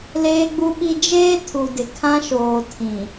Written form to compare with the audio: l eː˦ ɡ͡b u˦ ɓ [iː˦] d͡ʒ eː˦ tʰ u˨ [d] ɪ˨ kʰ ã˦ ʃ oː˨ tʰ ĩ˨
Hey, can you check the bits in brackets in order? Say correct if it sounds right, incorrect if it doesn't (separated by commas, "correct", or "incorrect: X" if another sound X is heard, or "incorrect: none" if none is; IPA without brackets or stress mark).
incorrect: i˦, correct